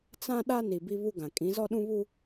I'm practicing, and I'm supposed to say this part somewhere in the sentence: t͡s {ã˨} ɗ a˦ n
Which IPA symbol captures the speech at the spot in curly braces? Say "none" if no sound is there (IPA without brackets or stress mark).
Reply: ã˦